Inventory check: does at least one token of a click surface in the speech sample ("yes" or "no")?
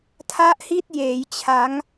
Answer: no